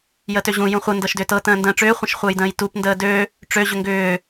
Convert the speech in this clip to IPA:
j ə t ø ʑ ũ j ũ χʷ ə n d ɤ ʃ d ʏ t ɤ t ə̃ː n d ə̃ː ʈ͡ʂ ʏː χʷ ə̃ ʃ χʷ əː j d ə̃ː j t u p n d əː d ø | ʈ͡ʂ ø ʑ ʏ ŋ ɡ ʏː

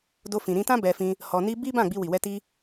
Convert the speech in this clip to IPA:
d o˧ f ĩ˨ ɾ ĩ˧ t ã˦ b ɛ˧ f ĩ˧ | h ɔ˧ n i˦ b i˦ b ã˦˨ ɡ͡b i˧ w i˨ w ɛ˧ t i˧

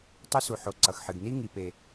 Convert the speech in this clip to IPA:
tˤ o˧ s u˩ ħ o˩ ǀ ʌ˩ x ħ ɨ˩ ɡ n i˧ ŋ i˩ p e˩

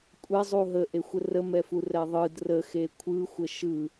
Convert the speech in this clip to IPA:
kʷʼ ɛ zˤ u ɦ ə ʔ e xʷ ə r ə m ɛ f u r ɛ ðˤ ɯ d r ə x e kʷʰ ɯ xʷ ə ʃ ɯ

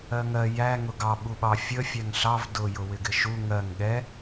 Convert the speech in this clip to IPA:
ɜ ŋ ɜ j æ ŋ ʊ ɡ ɑ ɓ u ɓ ɑ fʲ ə fʲ æ ŋ ɬ ɑ v d ʊ j ʊ w ɪ ɡ ɪ ʃ u ŋ ɜ ŋ ɠ ɛ

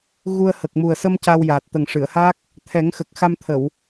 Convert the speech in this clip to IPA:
ɣ u˧ ə̯ h ə˨˩ k̚ m u˨˩ ə̯ s ə˧ m c a˧ w j aː˨˩ t̚ t̪ ə˨˩ ŋ ʂ ɨ˨˩˨ ə̯ h a˦˥ k̚ | t̪ʰ ɛ˨˩˦ ŋ x ə˨˩ k̚ x a˧ m t̪ʰ ə˨˩˨ w

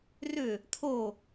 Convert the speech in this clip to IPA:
r ʏ | t̪ʰ o

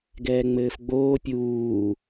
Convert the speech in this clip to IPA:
ɡ ɛː ŋ͡m ɘː f ɡ͡b oː pʲ uː

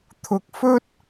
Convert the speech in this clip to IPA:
t̪ʰ ʊ˨ k̚ f ɵ˥ t̚

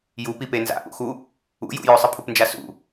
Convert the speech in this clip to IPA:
j u p i p e n z a̰ ʔ ṵ x u | ṵ j ṵ j ɵ sˤ ɨ pʰ u p n d͡ʒ a s ṵ

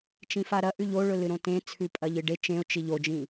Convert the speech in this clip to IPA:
t͡ʃ ĩ f a ɾ ɐ ʔ ʉ ʎ o ɭ ɵ l ɨ ɾ õ t ẽ t͡sʰ ʉ pʼ ɐ ʎ ɨ ɖ e t͡ʃ ẽ ʊ̯ t͡ʃ i ʎ o d͡ʒ ĩ

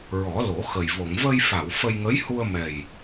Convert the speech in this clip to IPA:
ɹ ɔ˨˩˦ l o˨˩˦ x ə˨˩ j v o˨˩˨ ŋ v ə˧ j f a˨˩˨ w f ə˧ j ŋ ə˧˥ j h u˧ ə̯ m ɛ˨˩ j

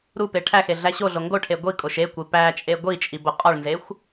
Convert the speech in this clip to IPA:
ɾ u p e ʈʰ æ x e ɮ æ ɕ o ɮ o ŋ ɡ o ʈʰ e ɡʷ i kʼ o ʃ e kʷ e p æ t͡ʃʼ e ɡʷ i t͡ʃʼ i b o qʼ ɒ ɭ n z e xʷ

